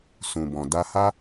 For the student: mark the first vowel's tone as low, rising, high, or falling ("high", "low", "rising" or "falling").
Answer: low